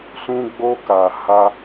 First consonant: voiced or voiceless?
voiceless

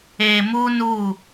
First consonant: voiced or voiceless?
voiced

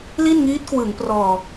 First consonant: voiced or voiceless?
voiced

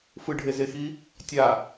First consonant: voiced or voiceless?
voiceless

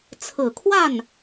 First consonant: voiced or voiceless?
voiceless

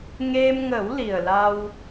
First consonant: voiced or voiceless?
voiced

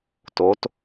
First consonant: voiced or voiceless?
voiceless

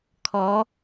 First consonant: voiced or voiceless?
voiceless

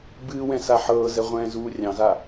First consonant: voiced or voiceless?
voiced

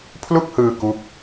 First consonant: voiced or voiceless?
voiceless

